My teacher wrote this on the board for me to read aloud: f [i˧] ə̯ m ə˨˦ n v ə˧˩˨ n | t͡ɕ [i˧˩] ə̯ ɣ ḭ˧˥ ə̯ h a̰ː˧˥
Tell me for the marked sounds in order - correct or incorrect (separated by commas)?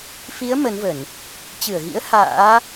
incorrect, incorrect